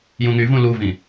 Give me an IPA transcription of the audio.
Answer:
j ũ ŋ y v ũ l u v ĩ

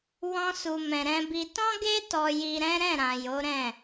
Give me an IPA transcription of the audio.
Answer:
w ɔ̃˧ s u˨ m ɛ̃˨ ɾ ɛ̃˧ b i˧ t ɔ̃˦ ɡ e˦ t ɔ˧ j i˧ ɾ ɛ̃˦ ɾ ɛ̃˦˨ ɾ ã˨ j o˨˦ ɾ ɛ̃˦˨

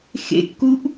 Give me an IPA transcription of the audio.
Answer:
x ḛ kː u ʔ

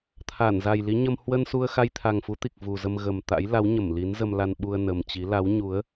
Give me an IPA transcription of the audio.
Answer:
t̪ʰ a˧˩ n z a˨˩ j l i˨˦ ɲ ə˧ m h w ə˧ n s u˧ ə̯ x a˧ j t̪ʰ a˨˩ ŋ f u˨˦ t̪ i˨˩ k̚ v u˨˩ z ə˧ m ɣ ə˨˩ m t̪ a̰˧˥ j l a˨˦ w ɲ ə˧˩ m l i˨˦ n z ə˧ m l a˧ n ɓ u˧ ə̯ n ə˨˩ m t͡ɕ i˨˦ l a˨˦ w ɲ u˨˦ ə̯

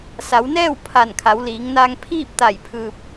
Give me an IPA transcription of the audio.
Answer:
s a˩˧ w n ɛː˥˨ w pʰ a˧˩ n kʰ a˩˧ w l iː˩˧ ŋ n aː˧ ŋ pʰ iː˥˨ p̚ t̪ a˧˩ j pʰ ɯː˧ p̚

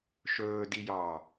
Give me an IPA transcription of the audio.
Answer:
ʃ ɵː d i j ɑː

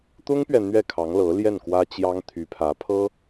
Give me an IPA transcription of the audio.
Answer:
t̪ ʊ˥ ŋ p ɥ ɛ˨ n̪ ɥ ɛ˥˩ kʰ ɑ˧˥ ŋ l ɤ˧˥ l j ɛ˥˩ n k w ä˥ t͡ɕ j ɑ˥ ŋ t̪ʰ y˧˥ pʰ ä˧˥ pʰ ɤ˥

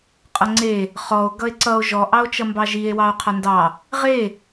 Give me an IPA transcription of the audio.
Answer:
qʼ ʌ ŋ͡ǀ e | χ ɔ o̯ ɡ ʌ e̯ ǀ ʌ o̯ ʒ ɔ ʔ ɑ o̯ t͡ʃ ʌ m b ɑ ʒ i e̯ w ɑ o̯ qʰ a n d ɑ | ʁ e

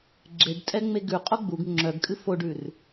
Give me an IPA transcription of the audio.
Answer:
ɡ͡ǁ e ɖ tʼ ɛ ŋ͡m e ɡ ʉ qʼ o ɡ͡b u ɡ ŋ͡ǁ œ ɡ kʼ ɨ f o ɖ ʉ r

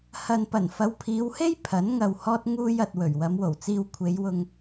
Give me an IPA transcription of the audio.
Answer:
h ɐ˨ n p ɐ˨˩ n f ɐ˨˧ w pʰ iː˨˧ w h e˥ j pʰ ɐ˨˥ n ŋ ɐ˨ w h ɔː˧ t̚ ŋ uː˧ j ɐ˨ t̚ w ɵ˨˩ ɥ w ɐ˨˧ m w o˨˩ w t͡s iː˧ w kʷʰ e˨˧ j w ʊ˧ ŋ

